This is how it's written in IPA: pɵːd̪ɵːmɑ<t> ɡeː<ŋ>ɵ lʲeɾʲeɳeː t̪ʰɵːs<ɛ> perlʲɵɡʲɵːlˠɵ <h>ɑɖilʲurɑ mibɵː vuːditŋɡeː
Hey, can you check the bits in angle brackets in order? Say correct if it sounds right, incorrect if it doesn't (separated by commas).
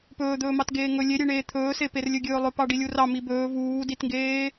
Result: correct, correct, incorrect, incorrect